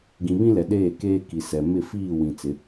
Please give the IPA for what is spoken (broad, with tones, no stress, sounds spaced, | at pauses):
ɡ ĩ˨ β ĩ˦ l ɛ˨ ɗ eː˦˨ k eː˦ k i˨ s ɛ˨ m ɪ˦˨ f iː˦˨ w ĩ˨ t͡s ɪ˨˦